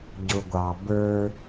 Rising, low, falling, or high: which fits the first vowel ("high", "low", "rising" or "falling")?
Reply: low